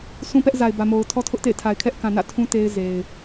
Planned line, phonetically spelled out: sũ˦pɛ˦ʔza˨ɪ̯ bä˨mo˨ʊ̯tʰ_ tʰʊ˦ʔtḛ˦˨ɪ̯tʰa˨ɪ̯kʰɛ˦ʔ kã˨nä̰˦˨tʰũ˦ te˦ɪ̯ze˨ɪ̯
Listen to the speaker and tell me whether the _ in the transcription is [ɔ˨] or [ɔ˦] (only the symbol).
ɔ˦